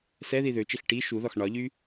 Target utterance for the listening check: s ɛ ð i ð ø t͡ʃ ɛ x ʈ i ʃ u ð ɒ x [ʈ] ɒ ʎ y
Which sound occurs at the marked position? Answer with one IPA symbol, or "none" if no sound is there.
ɳ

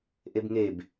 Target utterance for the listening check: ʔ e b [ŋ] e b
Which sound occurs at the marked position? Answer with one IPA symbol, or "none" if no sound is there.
ŋ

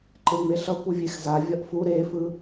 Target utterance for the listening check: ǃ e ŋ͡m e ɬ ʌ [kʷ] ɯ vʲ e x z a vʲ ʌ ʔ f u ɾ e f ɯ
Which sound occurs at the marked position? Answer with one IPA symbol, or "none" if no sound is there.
kʷ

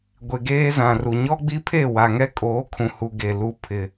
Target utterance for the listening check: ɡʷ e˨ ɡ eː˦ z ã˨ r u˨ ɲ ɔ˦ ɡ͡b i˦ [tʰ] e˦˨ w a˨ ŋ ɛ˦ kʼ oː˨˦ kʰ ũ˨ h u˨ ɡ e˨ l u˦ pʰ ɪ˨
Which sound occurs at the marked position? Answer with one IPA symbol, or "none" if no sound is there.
pʰ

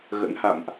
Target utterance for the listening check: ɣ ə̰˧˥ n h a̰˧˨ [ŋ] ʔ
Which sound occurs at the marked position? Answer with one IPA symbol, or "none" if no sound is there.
m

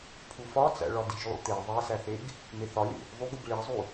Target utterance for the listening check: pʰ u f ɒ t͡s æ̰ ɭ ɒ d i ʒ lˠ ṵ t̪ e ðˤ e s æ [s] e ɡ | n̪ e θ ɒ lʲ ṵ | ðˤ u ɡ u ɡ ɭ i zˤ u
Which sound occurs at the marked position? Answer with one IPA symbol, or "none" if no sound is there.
θ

